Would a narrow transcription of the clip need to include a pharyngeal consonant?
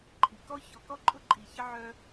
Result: yes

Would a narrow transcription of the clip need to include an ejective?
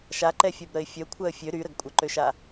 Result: yes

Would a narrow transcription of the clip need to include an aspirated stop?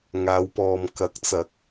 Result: no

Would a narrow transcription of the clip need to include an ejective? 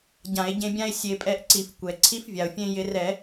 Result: yes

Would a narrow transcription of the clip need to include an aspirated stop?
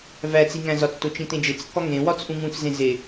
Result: no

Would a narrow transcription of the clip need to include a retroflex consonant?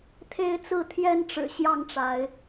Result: yes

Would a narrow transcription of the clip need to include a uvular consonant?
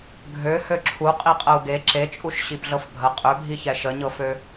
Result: yes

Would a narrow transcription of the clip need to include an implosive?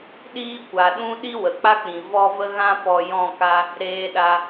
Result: yes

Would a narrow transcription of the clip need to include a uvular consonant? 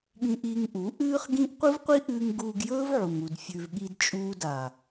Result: yes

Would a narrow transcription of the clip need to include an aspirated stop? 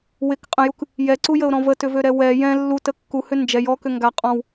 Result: no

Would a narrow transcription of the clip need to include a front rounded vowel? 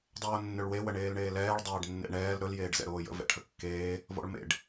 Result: yes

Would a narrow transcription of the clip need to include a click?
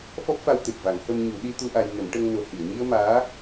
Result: no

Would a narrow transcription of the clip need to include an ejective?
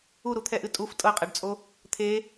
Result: yes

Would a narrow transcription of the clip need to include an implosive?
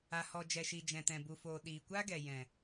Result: yes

